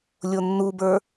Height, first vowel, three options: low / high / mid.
mid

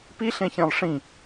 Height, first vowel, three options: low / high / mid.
high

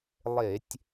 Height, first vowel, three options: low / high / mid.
mid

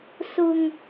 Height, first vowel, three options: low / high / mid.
high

